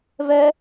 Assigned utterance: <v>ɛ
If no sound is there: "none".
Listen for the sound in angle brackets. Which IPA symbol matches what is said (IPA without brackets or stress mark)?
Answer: v